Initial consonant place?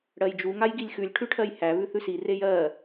retroflex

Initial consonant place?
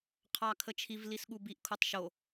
uvular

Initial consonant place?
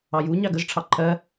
palatal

